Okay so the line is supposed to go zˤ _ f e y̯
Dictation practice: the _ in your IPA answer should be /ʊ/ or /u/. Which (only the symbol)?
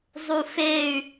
u